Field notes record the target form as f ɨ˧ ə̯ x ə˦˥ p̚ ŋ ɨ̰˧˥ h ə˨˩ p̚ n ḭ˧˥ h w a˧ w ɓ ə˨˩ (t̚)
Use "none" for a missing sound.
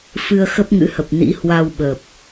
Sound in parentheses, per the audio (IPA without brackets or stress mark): p̚